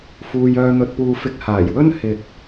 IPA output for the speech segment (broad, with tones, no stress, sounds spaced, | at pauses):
f uː˧ j œː˧ n̪ ɵ˧ t̚ p uː˧ f ɪ˨˥ k̚ h aː˨˩ j w ɵ˥ n h ɪ˨ k̚